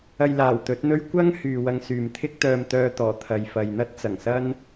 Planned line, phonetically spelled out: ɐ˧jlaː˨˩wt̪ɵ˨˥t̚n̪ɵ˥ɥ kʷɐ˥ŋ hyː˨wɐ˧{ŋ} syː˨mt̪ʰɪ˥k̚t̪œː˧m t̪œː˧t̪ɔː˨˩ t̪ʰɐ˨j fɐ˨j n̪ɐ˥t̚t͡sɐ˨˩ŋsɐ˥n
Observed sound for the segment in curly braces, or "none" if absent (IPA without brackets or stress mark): ŋ